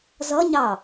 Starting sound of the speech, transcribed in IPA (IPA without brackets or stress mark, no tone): z